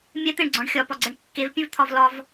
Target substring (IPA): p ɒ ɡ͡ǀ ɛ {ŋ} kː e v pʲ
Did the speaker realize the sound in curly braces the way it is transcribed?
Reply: no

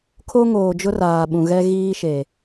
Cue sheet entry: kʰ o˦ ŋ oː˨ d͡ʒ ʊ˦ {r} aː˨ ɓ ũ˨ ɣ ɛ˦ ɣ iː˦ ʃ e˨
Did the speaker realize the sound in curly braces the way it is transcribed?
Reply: yes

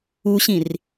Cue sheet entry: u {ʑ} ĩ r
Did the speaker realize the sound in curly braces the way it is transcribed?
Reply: no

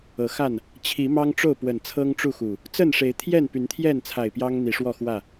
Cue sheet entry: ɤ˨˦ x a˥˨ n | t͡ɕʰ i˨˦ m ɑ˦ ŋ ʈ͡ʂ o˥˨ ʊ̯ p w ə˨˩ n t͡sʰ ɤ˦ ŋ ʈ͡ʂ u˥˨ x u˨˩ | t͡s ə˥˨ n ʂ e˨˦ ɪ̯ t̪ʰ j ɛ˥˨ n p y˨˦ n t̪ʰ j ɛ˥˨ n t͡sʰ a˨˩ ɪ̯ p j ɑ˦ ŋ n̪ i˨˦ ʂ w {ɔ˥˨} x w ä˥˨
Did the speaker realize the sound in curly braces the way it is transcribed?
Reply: yes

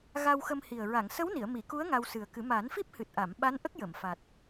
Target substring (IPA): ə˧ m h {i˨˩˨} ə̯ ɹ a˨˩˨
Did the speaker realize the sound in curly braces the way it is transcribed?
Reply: no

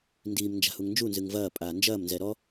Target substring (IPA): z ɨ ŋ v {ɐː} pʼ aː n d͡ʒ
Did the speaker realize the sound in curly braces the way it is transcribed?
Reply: yes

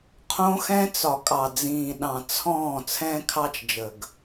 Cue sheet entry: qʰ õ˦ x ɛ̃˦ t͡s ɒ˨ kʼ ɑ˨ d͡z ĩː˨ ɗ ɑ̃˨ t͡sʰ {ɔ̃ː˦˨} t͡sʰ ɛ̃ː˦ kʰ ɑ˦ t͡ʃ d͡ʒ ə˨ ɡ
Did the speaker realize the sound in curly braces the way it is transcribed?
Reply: yes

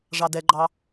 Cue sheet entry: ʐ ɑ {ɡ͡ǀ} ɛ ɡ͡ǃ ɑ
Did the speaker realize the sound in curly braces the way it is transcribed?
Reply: no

